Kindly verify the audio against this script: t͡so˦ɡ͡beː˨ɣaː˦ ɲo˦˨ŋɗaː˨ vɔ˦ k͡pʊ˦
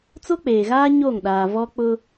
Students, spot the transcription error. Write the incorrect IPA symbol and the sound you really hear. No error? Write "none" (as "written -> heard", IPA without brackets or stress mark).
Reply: ɡ͡b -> k͡p